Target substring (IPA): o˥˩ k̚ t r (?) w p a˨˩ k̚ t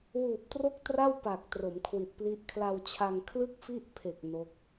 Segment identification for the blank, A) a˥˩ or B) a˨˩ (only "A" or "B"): A